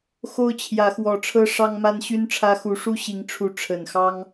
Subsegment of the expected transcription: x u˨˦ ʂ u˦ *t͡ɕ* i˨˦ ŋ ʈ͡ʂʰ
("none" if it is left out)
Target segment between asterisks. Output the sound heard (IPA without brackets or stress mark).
ɕ